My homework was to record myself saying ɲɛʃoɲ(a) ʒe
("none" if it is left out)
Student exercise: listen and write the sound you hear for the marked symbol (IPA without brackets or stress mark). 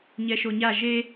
a